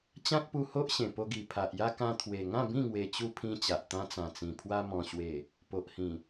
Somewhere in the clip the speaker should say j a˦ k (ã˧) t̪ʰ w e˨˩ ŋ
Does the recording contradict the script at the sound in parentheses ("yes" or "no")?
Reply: no